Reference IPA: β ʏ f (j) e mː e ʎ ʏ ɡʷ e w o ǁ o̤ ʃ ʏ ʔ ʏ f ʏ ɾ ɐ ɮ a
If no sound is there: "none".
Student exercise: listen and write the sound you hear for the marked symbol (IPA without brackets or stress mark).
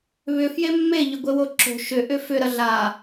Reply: j